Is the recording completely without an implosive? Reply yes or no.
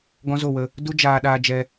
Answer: no